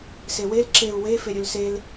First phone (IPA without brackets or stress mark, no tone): s